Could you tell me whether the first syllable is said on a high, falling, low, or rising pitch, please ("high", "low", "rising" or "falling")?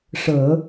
low